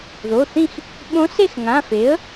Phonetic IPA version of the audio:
ð o˩˧˩ θ ĩ˥˨ x | ɓ õ˧˥ s e˥˨ x ŋ ã˩˧˩ f e˩˥ ə̯

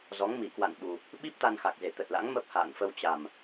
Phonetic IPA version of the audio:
z ɔ˨˦ ŋ m i˧˩ k w a̰˧˨ n ɓ u˨˩ | ɓ i˦˥ p̚ t̪ a˧ n x a˨˩ k̚ z e˧˩ t̪ ə˨˩ t̚ l a̰˧˥ ŋ m ə˦˥ p̚ h a̰ː˧˨ n f ə˧ w t͡ɕ a˨˩ m

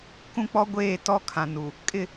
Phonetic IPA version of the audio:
k ũ˦ k͡p ɔ˦ ɡʷ eː˦˨ t ɔ˦ kʰ ã˨ n u˨ | kʼ ɪ˦˨

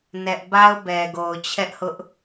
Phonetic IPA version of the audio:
n ɛ˦ ʔ b a˦ ʊ̯ b ɛ˨ ɡ o˨ ʊ̯ t͡ɕʰ ɛ˦ ʔ h ʊ˦ ʔ

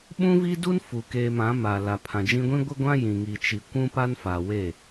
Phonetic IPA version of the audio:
ɓ ũ˦ v i˦ d u˦ n f u˨ k eː˨ m ã˨˦ m a˨ l a˨ pʰ ã˨ d͡ʒ ĩ˦ ɡʷ ĩ˦ ɡʷ ɪ˦ ɡʷ ã˦ j ĩ˨ ŋ i˨ t͡ʃ i˨ kʷ ũ˦ p a˦ n f a˨ w e˦˨

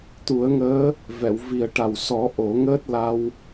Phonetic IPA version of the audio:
t̪ u˨˩˦ ə̯ ŋ əː˧˥ | v ɛ˨˩˨ w v i˨˩ ə̯ ʈ a˨˩ w s ɔ˨˩˦ ʔ o˨˩˦ ŋ əː˦˥ t̚ l a˧ w

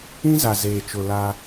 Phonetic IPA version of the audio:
ĩ˦ z a˨ z eː˨ t͡ʃ ʊ˨ l a˦

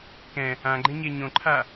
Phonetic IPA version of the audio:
k ɛ̃ | ã ɡ͡ǃ ẽ ɲ e ɲ õ ǃʰ a

